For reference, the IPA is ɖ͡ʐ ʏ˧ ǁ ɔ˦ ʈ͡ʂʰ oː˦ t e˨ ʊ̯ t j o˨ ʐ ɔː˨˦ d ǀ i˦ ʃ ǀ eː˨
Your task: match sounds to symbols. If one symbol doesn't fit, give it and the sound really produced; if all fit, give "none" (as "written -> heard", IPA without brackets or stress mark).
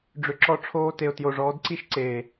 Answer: none